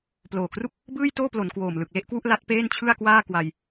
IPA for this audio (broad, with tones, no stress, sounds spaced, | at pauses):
p l oː˨˩ k r u˥˩ k̚ | b ɯː˥˩ j t oː˥˩ p l o˩˦ n k w oː˨˩ m l ɯ˨˩ k̚ l e˥˩ ʔ k w u˥˩ ʔ l a˦˥ t̚ p eː˥˩ n t͡ɕʰ ɯ˥˩ a̯ k w aː˥˩ k w a˧ j